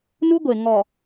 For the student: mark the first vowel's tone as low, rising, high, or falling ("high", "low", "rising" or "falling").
high